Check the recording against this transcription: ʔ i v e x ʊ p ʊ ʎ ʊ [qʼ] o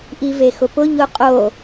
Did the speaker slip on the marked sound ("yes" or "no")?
no